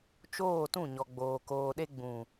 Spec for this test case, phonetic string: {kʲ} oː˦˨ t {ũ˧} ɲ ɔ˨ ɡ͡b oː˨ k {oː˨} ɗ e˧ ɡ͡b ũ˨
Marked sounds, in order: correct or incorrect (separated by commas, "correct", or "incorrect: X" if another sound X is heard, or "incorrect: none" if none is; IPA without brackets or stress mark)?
incorrect: t͡ʃ, incorrect: ũ˦˨, correct